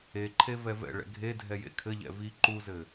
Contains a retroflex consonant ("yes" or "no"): yes